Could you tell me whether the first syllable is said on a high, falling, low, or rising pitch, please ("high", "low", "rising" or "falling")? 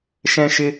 high